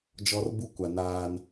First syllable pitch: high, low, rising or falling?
high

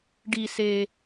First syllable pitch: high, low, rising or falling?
low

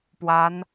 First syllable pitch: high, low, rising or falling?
rising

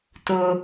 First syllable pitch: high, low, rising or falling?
high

